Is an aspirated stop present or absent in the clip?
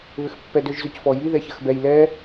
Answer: absent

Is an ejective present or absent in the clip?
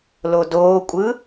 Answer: present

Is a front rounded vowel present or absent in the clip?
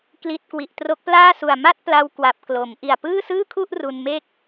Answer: absent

